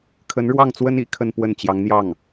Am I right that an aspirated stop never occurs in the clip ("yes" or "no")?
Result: no